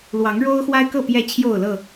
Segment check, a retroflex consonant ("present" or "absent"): present